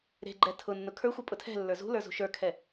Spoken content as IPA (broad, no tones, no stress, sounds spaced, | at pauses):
ɾ e̤ ɡ͡ǃ ɛ tʰ ʊ nː ʊ kʰ ə˞ xʷ ɯ pʼ ʊ tʰ ɛ̤ lː ə˞ z ṳ l ə˞ z ṳ ʃ ə˞ kʰ ɛ